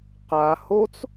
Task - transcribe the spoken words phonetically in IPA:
q a h o t͡s

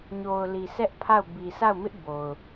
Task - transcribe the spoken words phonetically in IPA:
ɲ o˨ ʊ̯ l i˨ sʰ ɛ˦ ʔ pʰ a˦˨ ʊ̯ b i˨ sʰ a˦˨ ʊ̯ m ɪ˦ ʔ b o˨ ʊ̯

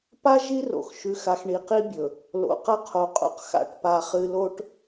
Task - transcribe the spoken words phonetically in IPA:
p a˦ ʒ i˦ r o̰˨ x ʃ ʉ˨ x a˨ x ɳ i˨ q i˦ bʲ ɵ˨ | l o̰˨ q ɐ˦ qʰ o˨ qʼ o̰˦ q x a̰˦˨ ʈ p a˦˨ χ ɨ˦ l o˦ ʈ

